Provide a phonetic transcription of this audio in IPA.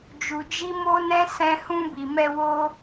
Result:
d͡ʒ u˨ d͡ʒ i˧ m o˦ n ɛ̃˦ s ɛ̃˧ h ũ˧ b i˨ m ɛ˧ w o˦

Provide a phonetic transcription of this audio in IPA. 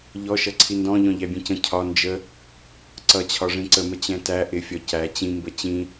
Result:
ʎ ɔ ʃ ʌ ǀʰ i n d ɔ̃ ʎ ɔ̃ ʎ æ bʲ ɛ̃ c ə̃ cʰ ɒ n d͡ʒ ə | ǀ ʌ t͡ɕʰ ɒ ʐ ĩ ǀ ə m ə t͡ɕ ɛ̃ t æ ʔ ɪ fʲ ɒ c æ t͡ɕ ĩ m b ə t͡ɕ ĩ

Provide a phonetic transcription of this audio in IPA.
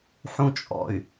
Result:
ħ ũ t͡ʃʼ ɔ̰ y̯

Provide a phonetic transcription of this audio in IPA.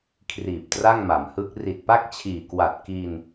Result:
kʰ r iː˨˩ p̚ t r a˥˩ ŋ m a˩˦ m h ɯ˦˥ k̚ r i˨˩ t̚ p a˥˩ k̚ t͡ɕʰ iː˨˩ k w a˨˩ t̚ k iː˧ n

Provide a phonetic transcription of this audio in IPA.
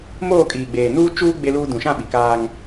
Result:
m oː˦˨ kʼ iː˨ ɡ͡b eː˨ n uː˦ t͡ʃ uː˦ ɡ͡b e˦ l uː˦ d ũ˨ ʃ ã˦˨ ɓ i˨ k aː˦ ŋ

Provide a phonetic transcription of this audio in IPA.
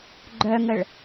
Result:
ɡ͡ǃ œ ŋ ə ɭ

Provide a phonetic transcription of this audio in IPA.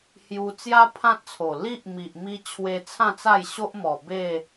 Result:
h j u˧ t͡s j a˦ pʰ ã˦ t̚ t͡sʰ o˨˩ l i˦ ʔ m i˨ ʔ m i˧ t͡ɕʰ w e˧ t͡sʰ ã˥˧ t͡s a˥˧ j ɕ o˦ ʔ m ɔ˨˩ b e˥˧

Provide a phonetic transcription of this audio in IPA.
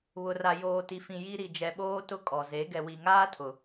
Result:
β ʊ˨ r a˨ j oː˨ t i˨ f ĩ˨ j i˦ ɾ i˨ d͡ʒ ɛ˨ ɓ oː˦ t ʊ˦ kʼ ɔ˨ z e˨˦ ɡ ɛ˨ w i˨ ŋ aː˦ tʰ ʊ˨

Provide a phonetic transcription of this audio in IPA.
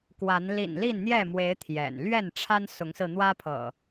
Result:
k w a˨˦ n l ḭ˨˩ n l i˥˨ n n̪ j ɛ˥˨ m w e˨˦ ɪ̯ t̪ʰ j ɛ̰˨˩ n l ɥ ɛ˥˨ n ʈ͡ʂʰ a˦ n s ʊ˨˦ ŋ s ɹ̩˧ n̪ w ä˦ pʰ ɤ̰˨˩

